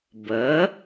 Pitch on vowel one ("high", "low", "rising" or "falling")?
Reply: rising